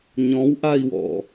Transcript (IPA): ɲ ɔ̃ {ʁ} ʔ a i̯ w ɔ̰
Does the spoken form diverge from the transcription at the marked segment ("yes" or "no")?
yes